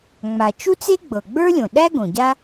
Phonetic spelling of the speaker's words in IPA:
ŋ͡m a˩ t͡ʃ u˥ t͡s e˥ ɡ͡b ɤ˩ ɡ͡b ə˞˥ lʲ õ˩ ɗ æ˥ ɡ õ˩ ɟ a˥

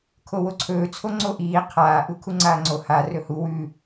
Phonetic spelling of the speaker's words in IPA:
kʰ o w o ǀʰ ɵː t͡sʰ o ŋ͡ǀ o ʔ iː qʰ aː ʔ u kʰ u ŋ͡ǀ aː ŋ͡ǀ o h a r ɵ h u w ʉ

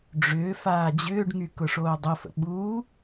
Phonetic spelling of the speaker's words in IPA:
ɖ͡ʐ ʏː f aː d͡ʑ ʏː ɖ ŋ y k ʊ ʂ oː dˤ ə f ə̰ ɓ uː

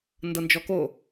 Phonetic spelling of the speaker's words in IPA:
n d ɤ n d͡ʒ ɔ k o

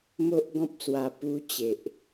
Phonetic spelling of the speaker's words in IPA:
m o˦ ʔ ɡ ɔ̃˦ p̚ s w a˧ p u˦ t͡ɕ e˨ ʔ

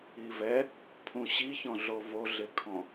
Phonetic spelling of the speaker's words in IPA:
i v ɛ | pʰ ũ ɕ i ç ɔ̃ ɮ o v o ɮ ɪ kʰ ɔ̃

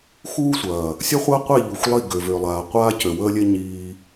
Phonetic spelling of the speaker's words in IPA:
x uː˦ sʷ ɐː˨ | sʲ ɐ˦ χʷ əː˦ qʷ e˦˨ ʎ u˨ xʷ lˠ i˦˨ ɡ ø˨ v ø˨ lˠ aː˨ qʷ aː˦ c ø˨ w əː˦ lʲ e˦ ɲ iː˦

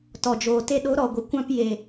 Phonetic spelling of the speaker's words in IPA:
t ɔ˨ d͡ʒ oː˨ t e˧ ɗ o˨˦ ɾ ɔ˨ ɡʷ ə˨ kʷ ã˧ p j e˨

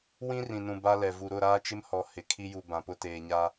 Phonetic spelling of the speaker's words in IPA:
w ĩ˦ r ĩ˨ n ũ˨ b a˦ l ɛ˨ v u˨ ɾ ʊ˦˨ ɾ aː˦ t͡ʃ ɪ˦ m h ɔ˨ h ɪ˨ kʰ i˦ j u˨ b ã˨ p ʊ˦ t eː˨ ɲ a˦

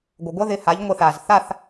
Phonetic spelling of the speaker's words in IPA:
ɡʷ ə˩ ɡʷ ʌ˥ ð ɪ˩˧˩ h a˩˥ ʎ ŋʷ ə˩˧˩ θ a˩ z θ a˥˨ θ

